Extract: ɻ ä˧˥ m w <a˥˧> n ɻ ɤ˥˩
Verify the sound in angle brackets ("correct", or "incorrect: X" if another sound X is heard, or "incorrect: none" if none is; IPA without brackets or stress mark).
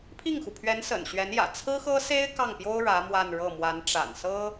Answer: correct